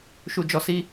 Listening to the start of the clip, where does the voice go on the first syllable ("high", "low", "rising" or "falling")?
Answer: low